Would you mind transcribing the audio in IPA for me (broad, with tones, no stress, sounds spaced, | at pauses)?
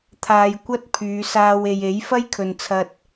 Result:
t̪ʰ aː˧ j kʷ ɐ˥ t̚ pʰ yː˨˧ s aː˧ w e˨ j e˨˥ j f ɐ˥ j kʰ ɵ˨ n t͡sʰ ɐ˧ t̚